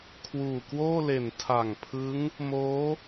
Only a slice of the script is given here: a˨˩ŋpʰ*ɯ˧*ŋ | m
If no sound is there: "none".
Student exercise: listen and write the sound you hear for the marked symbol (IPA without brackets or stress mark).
ɯ˦˥